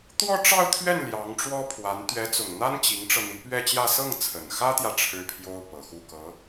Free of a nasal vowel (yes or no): yes